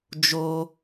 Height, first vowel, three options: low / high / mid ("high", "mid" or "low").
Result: mid